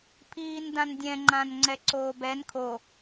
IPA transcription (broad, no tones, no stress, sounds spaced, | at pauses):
pʰ iː n d ã n dʲ ɛ̃ ŋ͡ǃ ã n ŋ͡ǀ ɛ ǀ oː b ɛ n kʰ o